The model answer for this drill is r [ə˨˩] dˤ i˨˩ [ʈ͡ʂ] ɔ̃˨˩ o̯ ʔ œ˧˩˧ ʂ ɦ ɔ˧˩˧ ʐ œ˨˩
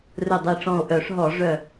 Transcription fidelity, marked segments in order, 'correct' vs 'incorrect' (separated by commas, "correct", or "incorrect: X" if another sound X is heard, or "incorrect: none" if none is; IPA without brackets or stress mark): incorrect: ɵ˨˩, correct